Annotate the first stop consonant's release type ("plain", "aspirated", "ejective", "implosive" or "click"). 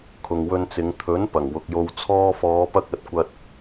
aspirated